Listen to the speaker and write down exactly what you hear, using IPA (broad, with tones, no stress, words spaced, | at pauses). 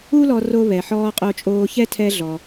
u˥lɔ˧ ro˧ βɛ˩ħɔː˧ qʼo˧t͡ʃʼoː˧çɛ˥ tʰɛ˧ɮɔ˩